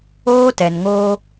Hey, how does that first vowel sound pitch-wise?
high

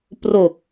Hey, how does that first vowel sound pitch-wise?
low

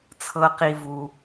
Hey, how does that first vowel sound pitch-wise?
low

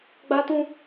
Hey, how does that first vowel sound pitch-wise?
high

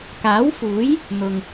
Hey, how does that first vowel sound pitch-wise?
rising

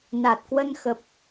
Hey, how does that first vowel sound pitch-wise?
low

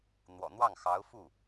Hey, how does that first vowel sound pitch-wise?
low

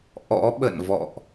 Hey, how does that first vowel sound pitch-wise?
rising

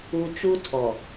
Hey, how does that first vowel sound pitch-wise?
low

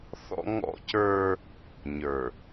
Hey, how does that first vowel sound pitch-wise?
high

